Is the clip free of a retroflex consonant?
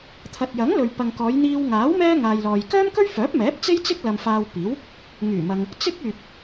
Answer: yes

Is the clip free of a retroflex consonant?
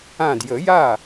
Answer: yes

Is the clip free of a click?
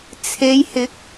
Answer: yes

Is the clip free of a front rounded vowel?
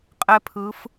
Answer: yes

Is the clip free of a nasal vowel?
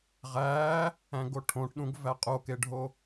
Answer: no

